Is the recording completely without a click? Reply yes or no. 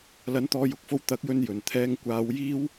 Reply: yes